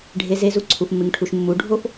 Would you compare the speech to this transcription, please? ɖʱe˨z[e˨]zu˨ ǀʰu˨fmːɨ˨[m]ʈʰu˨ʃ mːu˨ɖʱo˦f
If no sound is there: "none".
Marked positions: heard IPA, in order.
e˨, ŋ

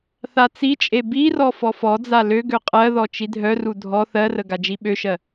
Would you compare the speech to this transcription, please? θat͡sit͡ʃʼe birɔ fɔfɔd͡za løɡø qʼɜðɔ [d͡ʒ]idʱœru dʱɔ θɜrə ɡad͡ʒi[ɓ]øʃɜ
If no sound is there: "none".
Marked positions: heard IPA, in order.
t͡ʃ, ɓ

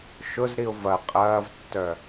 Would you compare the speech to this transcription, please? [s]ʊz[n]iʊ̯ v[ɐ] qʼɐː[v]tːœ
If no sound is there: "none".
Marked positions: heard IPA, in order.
ʃ, ɾ, ɐ, v

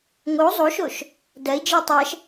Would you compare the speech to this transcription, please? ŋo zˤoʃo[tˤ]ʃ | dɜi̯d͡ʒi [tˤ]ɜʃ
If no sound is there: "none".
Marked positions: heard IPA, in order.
none, tˤ

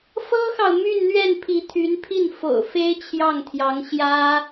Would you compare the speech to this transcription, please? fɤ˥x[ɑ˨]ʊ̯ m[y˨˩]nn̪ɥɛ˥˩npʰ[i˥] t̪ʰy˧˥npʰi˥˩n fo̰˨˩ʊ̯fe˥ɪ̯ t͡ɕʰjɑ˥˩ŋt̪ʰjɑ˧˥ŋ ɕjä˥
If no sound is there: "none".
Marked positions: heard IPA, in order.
ɑ˨, y˥˧, i˧˥

